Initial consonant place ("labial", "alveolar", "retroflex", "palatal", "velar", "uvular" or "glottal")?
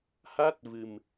glottal